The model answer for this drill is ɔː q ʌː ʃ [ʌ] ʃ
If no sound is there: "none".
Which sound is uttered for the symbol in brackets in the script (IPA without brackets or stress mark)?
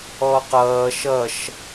ʌ